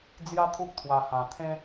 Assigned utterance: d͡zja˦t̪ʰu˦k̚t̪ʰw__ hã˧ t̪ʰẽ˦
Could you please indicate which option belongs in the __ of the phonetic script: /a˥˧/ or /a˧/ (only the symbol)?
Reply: a˧